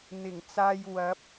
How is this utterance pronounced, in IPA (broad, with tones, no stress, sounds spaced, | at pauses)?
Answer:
n̪ ɪ˨˩ ŋ t͡s aː˧ j w ɐ˨˥ p̚